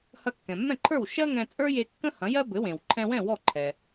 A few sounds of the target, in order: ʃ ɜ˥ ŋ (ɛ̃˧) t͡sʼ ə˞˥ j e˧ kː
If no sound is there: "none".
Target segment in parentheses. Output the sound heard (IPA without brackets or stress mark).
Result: ɛ̃˧